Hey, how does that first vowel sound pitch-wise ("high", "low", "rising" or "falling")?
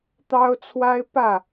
high